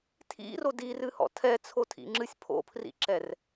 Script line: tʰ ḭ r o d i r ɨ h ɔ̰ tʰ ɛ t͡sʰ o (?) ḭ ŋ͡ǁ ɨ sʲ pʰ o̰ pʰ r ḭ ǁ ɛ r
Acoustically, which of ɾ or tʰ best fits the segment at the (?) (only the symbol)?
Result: tʰ